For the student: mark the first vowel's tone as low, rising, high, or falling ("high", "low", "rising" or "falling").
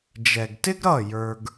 low